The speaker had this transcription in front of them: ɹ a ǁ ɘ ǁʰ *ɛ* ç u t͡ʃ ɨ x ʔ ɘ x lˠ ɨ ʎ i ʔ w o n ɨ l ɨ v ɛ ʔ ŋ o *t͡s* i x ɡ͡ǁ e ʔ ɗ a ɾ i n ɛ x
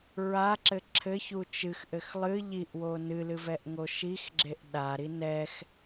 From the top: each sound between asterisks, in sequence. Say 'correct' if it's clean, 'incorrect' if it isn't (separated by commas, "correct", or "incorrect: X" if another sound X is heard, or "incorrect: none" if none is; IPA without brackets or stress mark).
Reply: incorrect: ɘ, incorrect: ʃ